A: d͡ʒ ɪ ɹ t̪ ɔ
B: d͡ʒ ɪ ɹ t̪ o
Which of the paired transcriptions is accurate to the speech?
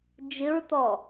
A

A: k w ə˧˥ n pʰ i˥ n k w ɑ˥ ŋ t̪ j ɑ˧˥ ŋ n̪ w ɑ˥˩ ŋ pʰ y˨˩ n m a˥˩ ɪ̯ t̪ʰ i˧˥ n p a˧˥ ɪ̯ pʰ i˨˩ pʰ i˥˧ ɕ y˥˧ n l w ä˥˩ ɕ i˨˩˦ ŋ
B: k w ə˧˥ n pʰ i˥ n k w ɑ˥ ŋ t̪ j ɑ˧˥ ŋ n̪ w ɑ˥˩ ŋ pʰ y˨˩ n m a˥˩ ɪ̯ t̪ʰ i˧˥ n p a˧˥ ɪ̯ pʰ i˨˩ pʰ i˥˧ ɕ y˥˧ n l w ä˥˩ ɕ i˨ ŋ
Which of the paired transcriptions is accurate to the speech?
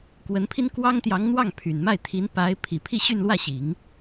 A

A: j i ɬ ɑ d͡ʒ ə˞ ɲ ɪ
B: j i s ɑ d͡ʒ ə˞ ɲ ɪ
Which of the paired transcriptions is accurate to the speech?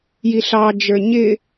A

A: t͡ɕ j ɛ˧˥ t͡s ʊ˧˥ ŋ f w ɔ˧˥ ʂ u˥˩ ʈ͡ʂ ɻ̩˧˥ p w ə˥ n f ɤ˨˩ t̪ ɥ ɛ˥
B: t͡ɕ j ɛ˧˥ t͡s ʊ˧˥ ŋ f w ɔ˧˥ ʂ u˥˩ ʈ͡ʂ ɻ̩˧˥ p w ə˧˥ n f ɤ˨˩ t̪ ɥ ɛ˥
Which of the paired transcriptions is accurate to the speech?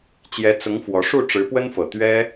A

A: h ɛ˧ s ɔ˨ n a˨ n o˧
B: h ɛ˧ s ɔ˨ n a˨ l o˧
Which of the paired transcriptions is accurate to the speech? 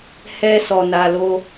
B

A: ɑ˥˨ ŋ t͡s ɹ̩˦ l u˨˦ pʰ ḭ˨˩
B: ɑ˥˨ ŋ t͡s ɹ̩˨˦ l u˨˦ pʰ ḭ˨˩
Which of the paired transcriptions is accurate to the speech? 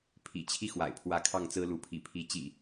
A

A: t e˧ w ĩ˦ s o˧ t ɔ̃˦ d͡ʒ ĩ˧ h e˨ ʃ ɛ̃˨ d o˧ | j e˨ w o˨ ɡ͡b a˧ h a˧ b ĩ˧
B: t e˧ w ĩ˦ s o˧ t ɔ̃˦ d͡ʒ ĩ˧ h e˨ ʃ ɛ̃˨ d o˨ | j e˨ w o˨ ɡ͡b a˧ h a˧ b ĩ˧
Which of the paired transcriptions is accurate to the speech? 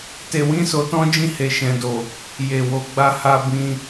B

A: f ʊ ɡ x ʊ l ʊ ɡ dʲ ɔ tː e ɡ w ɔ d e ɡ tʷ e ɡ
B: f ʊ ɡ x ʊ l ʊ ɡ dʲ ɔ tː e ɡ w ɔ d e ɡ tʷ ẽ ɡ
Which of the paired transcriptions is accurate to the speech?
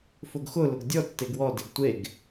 A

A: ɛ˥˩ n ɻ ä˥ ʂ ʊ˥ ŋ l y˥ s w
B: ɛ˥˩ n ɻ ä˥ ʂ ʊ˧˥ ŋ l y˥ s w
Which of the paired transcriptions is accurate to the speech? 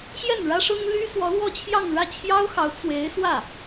A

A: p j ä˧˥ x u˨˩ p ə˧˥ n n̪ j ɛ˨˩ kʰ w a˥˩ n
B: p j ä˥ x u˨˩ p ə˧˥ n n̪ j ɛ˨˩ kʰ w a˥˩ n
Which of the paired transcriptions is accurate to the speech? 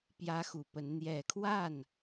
A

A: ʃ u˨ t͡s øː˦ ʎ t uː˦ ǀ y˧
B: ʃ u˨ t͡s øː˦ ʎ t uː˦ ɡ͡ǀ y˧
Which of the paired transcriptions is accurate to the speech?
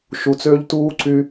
A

